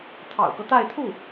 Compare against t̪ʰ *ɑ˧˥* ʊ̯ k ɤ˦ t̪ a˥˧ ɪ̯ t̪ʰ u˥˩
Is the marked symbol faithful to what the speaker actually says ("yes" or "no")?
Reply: no